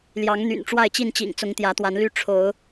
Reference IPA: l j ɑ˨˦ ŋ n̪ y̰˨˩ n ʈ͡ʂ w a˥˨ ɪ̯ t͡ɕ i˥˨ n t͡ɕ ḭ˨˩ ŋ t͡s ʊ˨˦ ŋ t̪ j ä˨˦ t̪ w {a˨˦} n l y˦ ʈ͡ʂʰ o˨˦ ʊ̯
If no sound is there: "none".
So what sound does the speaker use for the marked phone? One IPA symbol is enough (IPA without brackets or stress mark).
a˨˦